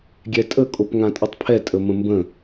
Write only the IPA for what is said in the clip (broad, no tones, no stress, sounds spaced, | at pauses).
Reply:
ɡʲ ɛ tʼ ə kʼ o p ŋ ã tʼ ə tˤ pʰ ɛ tʼ ə m ə̃ m b ə̃